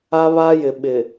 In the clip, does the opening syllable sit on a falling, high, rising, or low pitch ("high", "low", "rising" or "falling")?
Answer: high